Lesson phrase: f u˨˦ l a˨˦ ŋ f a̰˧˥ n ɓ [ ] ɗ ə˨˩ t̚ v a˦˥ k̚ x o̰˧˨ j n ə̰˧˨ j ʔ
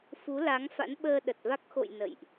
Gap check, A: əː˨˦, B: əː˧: B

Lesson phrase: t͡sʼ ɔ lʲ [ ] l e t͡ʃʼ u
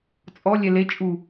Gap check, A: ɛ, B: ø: A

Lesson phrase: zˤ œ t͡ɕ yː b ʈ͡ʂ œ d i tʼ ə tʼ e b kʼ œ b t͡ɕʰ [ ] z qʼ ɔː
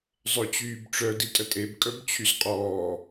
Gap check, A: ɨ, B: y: B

